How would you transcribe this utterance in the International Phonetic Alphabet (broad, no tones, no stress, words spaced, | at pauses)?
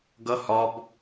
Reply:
ɡʌ hɒb